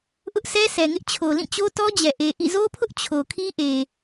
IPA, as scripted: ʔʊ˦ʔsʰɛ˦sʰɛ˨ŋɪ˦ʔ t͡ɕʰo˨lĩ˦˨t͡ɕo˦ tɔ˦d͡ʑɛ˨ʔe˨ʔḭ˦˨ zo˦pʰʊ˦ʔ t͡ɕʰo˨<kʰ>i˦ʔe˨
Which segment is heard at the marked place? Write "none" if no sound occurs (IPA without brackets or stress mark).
kʰ